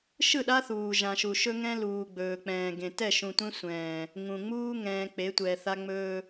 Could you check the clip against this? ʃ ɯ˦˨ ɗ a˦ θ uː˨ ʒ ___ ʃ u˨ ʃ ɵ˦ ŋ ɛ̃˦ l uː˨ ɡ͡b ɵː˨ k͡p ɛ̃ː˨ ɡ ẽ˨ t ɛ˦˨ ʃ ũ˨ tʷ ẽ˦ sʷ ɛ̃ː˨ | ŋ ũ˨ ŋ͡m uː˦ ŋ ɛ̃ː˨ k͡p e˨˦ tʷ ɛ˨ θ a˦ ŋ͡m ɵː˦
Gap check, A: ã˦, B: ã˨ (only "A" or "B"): B